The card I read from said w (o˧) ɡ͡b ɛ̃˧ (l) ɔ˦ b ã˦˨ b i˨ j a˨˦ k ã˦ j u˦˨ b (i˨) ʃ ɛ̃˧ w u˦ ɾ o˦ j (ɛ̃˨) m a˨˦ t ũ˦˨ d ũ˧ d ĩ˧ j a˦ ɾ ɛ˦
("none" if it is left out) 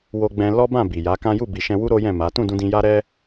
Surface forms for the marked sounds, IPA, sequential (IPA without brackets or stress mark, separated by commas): o˧, l, i˨, ɛ̃˦˨